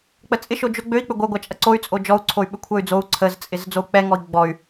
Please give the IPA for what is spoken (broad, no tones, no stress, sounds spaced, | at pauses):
k͡p ə t͡sʼ ɪ ʃ o d͡ʒ o ɡ͡b ø i̯ k͡p ʏ ɡʷ œ ɡʷ a t͡ʃʼ ɐ ǀ o y̯ t͡sʼ o d͡ʒ ɔ u̯ ǀʰ o y̯ ɓ ʏ kʷʰ œ y̯ d͡z o u̯ ǀʰ ə z t͡sʼ ɪ z d͡z o u̯ k͡p ɛ ŋ ɔ i̯ ɡ͡b ɔ y̯